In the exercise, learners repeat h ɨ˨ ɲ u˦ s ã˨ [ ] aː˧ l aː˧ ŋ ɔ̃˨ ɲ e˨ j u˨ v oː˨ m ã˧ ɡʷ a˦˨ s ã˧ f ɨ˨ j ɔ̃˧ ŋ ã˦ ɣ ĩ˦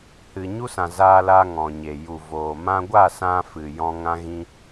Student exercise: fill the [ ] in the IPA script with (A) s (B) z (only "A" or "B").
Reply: B